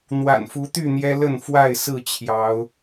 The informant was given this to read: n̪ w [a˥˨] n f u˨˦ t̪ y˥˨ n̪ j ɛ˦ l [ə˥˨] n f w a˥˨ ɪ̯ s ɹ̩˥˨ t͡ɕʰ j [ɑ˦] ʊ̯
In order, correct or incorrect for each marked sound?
incorrect: a̰˨˩, correct, incorrect: ɑ˨˦

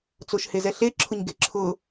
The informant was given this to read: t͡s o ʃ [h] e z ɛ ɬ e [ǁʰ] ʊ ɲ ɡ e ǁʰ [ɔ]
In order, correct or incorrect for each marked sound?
correct, correct, incorrect: ʊ

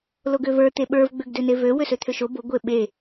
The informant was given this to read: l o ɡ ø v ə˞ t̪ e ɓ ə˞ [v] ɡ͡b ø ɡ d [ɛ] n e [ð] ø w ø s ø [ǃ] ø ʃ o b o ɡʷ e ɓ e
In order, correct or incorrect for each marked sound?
correct, incorrect: ø, incorrect: v, incorrect: t̪ʰ

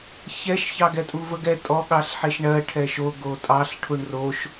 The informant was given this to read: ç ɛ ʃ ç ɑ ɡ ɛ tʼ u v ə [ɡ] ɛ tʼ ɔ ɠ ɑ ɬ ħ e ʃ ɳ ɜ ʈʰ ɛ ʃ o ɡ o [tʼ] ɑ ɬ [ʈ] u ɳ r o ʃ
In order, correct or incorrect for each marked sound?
correct, correct, incorrect: ʈʰ

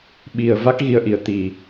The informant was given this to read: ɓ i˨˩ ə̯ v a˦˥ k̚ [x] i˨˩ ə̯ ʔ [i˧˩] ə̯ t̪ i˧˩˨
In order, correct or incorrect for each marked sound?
incorrect: ɣ, correct

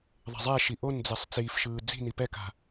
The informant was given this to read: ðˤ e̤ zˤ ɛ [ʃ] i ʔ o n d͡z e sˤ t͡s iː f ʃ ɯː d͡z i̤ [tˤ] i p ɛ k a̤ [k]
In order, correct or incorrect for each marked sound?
correct, incorrect: n, incorrect: none

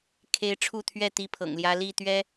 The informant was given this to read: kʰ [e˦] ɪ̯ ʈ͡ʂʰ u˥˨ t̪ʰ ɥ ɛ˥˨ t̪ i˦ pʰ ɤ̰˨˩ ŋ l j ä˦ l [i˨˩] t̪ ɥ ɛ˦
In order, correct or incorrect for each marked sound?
correct, incorrect: i˥˨

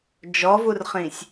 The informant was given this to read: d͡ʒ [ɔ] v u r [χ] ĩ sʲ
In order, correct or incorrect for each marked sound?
correct, correct

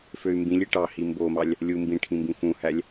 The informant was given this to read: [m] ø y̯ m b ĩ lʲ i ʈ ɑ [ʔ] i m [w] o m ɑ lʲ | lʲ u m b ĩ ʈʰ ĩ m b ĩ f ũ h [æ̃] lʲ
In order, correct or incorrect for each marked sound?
incorrect: f, incorrect: h, incorrect: b, incorrect: æ

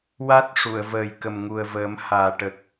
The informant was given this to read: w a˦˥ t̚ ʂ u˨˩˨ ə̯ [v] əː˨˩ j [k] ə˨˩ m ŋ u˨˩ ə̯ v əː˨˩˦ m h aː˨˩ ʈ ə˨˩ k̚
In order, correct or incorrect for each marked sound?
correct, correct

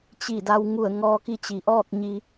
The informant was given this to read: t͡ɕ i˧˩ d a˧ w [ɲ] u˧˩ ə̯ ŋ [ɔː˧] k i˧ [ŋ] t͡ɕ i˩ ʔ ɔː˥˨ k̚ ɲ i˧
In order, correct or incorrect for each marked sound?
incorrect: ŋ, correct, incorrect: none

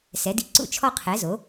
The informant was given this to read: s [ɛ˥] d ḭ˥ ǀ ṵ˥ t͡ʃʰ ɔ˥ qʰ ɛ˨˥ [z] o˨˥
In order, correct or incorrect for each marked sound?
incorrect: ɛ˨˥, correct

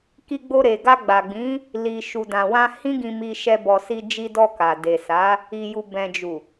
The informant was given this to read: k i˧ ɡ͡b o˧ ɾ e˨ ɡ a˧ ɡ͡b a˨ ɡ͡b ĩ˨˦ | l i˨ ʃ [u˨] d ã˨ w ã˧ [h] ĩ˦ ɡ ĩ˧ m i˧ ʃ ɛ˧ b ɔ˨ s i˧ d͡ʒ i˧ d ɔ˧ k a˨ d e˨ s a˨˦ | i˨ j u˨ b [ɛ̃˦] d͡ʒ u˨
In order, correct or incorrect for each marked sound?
correct, correct, incorrect: ɛ̃˨

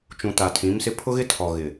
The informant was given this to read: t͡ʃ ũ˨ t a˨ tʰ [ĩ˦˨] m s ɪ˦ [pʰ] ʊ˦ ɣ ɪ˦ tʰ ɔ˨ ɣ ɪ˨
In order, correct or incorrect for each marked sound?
incorrect: ĩ˨˦, correct

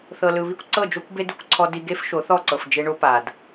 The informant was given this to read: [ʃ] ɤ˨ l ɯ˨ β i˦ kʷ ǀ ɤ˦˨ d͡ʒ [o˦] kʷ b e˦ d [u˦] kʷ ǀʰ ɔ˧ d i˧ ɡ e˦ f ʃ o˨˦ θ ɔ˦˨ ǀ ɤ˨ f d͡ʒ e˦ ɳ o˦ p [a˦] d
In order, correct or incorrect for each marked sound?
incorrect: θ, correct, incorrect: u˧, incorrect: a˨

